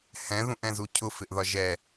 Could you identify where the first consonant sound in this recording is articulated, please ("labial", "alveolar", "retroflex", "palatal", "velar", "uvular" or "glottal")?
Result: glottal